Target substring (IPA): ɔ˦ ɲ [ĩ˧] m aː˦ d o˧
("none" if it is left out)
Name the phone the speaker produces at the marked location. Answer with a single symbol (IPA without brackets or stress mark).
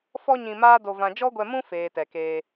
ĩ˧